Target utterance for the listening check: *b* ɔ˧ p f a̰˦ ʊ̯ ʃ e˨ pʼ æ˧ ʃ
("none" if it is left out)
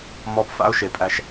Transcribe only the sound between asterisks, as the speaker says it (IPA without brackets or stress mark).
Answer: m